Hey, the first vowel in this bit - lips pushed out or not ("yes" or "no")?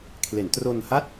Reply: no